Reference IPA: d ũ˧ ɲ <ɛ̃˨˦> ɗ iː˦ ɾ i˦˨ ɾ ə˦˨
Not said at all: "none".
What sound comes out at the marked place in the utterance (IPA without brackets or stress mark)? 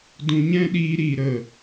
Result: ɛ̃˦